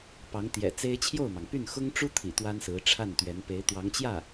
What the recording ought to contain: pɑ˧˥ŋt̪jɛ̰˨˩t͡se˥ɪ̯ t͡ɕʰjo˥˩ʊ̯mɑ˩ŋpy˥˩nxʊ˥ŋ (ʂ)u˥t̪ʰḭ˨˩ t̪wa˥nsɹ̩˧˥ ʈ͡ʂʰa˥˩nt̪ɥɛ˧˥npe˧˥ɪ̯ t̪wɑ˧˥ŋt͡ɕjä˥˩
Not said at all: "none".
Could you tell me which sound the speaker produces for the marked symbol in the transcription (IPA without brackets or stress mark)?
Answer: ʈ͡ʂ